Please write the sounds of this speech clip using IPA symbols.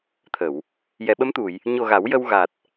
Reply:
t̪ʰ ə˨˩˨ w | j ɛ˨˩˨ ɓ ə˧˥ m t̪ u˨˩˨ j | ɲ o˨˩ ɣ a˨˩˦ w j ə˧ w ɣ a˨˩ t̚

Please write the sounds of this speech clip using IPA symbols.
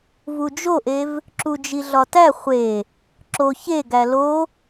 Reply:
v u d͡ʒ o ʔ e v | ǁ u d͡ʒ i ɮ ɒ t æ χʷ e | ǁ o ç e ɡ æ l o

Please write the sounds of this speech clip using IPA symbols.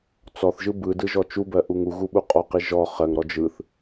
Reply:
t͡s ɔ θ ʒ ɯ b ɯ d ɯ ʒ ɔ t͡ʃ u b ɜ ʔ u ŋ u ɣ u ɓ u qʼ ɔ q i ʒ ɔ χ ɜ ŋ ɾ ɔ d͡ʒ ɯ θ

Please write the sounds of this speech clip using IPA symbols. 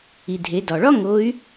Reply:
i˩ dʱ e˩˧ d ɒ˩ ɭ ɒ˥ ŋ o˧˥ y̯

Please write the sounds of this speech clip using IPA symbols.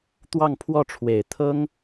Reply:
t̪ w ɑ˥˧ ŋ pʰ w ɔ˥˩ ʈ͡ʂʰ w e˨˩ ɪ̯ t̪ʰ ɤ˥ ŋ

